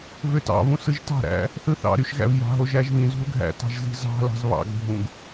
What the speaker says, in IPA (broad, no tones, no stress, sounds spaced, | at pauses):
v ø t ɑ̰ v ũ s ɯ ʒ t ɑ̤ ɾ æ̰ | θ ɯ θ ɑ̰ ɾ y ʃ ɣ æ̰ v j ɑ̤ ɦ o ʒ æ ʒ v ĩ z ṳ l ɡʱ æ̰ t ɑ̤ ʒ z i̤ z ɑ̤ l ɑ̤ z β ɑ̰ ɡ bʱ ũ ɡ